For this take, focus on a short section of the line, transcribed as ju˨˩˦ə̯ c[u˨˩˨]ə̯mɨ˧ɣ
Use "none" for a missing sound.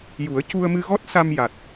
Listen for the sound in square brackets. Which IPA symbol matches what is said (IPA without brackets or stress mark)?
u˧